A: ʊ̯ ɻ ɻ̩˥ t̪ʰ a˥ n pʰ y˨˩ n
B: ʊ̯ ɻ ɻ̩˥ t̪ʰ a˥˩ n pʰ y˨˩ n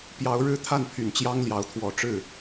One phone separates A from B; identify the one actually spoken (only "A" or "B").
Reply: B